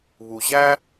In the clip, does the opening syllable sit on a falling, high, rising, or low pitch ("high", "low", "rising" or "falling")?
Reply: low